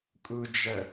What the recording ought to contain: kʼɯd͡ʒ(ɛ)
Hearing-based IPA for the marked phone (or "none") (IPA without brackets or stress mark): ɛ